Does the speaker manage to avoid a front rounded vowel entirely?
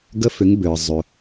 no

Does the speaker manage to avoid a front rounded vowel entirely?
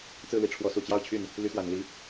no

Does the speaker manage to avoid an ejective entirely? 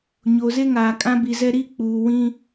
no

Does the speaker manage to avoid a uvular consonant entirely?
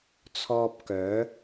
yes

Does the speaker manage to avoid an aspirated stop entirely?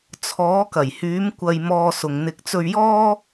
no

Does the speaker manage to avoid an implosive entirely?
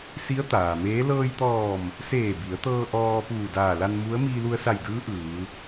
yes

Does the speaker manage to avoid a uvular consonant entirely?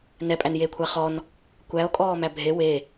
no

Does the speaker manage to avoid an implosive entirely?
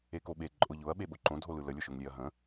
no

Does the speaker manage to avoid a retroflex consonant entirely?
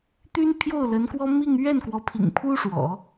no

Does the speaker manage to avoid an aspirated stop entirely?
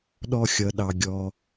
yes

